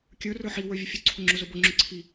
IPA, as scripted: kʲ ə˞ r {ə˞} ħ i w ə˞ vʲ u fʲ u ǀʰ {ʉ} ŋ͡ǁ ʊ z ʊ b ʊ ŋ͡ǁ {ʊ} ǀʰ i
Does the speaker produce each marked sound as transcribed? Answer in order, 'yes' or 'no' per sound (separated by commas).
yes, no, yes